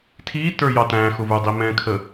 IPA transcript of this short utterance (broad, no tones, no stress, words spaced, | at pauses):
tʰi tə˞jɑtæ̃xʊ və˞dˤimɛ̃kʰə